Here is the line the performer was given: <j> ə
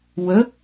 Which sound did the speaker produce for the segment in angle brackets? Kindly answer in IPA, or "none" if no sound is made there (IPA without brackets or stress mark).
w